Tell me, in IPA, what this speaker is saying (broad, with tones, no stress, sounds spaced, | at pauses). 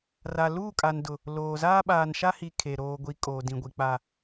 r a˨ l uː˦˨ kʼ a˨ n d ʊ˨ | l oː˨ z aː˦ ɓ aː˨ n ʃ a˦ h i˨ kʰ e˨ ɾ oː˨ ɡʷ i˨˦ kʼ oː˨ d ĩ˨ ɡʷ i˨ k͡p a˨